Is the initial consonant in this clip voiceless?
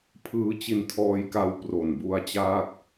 yes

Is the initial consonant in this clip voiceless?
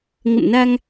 no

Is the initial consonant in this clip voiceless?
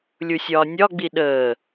no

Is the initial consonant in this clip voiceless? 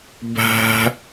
no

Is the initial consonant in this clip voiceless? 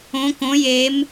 yes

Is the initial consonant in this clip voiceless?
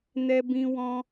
no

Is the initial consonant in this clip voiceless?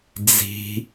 no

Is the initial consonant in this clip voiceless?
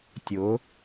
yes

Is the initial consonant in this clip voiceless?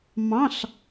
no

